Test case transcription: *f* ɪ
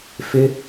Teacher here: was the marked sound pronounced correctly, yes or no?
yes